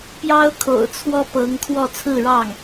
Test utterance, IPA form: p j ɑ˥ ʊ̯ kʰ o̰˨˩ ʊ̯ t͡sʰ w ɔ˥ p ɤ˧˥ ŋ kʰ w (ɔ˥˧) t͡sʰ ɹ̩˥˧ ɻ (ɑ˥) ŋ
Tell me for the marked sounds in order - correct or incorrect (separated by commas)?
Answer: correct, incorrect